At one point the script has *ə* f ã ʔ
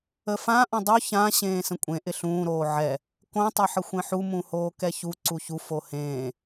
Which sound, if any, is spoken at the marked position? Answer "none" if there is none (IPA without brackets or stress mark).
ə